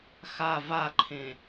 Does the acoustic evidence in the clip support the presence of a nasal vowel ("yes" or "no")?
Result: yes